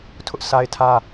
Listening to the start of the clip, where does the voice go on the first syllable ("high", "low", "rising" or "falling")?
high